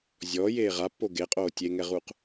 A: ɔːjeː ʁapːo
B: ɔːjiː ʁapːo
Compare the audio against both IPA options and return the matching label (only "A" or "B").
A